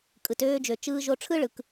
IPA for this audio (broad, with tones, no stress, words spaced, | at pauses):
kʼɯ˩tøː˧d͡ʒø˩ t͡ʃɯː˧ʒo˧ʈ͡ʂʰɯ˥ ɭɯ˩k